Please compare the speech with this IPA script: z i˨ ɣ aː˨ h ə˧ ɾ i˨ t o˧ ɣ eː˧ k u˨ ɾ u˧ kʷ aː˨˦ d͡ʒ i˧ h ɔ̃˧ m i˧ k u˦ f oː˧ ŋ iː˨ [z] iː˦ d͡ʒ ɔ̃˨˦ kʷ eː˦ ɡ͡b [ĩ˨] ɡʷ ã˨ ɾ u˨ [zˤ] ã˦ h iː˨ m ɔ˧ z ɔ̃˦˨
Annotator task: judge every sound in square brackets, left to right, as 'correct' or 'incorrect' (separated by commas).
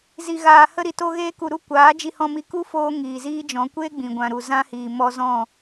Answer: correct, correct, incorrect